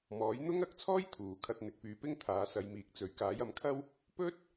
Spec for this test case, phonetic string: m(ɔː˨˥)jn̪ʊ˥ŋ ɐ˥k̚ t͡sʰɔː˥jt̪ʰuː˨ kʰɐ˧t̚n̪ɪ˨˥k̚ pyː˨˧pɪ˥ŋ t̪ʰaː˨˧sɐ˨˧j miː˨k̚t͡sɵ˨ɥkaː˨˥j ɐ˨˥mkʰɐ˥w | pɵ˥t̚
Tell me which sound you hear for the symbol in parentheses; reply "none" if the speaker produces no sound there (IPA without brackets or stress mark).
ɔː˨˥